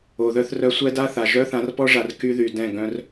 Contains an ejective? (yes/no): no